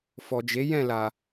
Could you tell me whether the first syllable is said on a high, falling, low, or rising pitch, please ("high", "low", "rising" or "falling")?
low